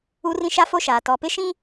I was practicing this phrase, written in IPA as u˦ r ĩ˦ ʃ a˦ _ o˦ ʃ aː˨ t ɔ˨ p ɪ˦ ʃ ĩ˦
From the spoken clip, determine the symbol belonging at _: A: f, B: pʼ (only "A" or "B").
A